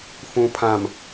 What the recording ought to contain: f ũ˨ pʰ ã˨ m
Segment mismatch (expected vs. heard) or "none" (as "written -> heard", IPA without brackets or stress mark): none